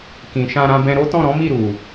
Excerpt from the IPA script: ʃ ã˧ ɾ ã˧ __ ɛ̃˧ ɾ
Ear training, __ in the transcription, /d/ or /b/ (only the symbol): b